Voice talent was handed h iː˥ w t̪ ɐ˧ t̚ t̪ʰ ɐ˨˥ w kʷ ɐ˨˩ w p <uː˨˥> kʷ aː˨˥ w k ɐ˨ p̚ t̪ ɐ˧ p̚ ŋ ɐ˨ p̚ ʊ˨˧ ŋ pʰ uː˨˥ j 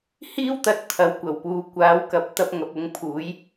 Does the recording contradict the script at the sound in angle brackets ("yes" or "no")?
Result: yes